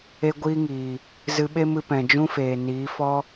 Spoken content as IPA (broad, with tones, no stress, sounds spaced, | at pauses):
e˦ ɡʷ iː˦ ŋ iː˨ | z ɨ˧ ɓ e˦ m ɨ˧ p ɛ̃˨ d͡ʒ ũ˦ f eː˨ n iː˨˦ f ɔ˦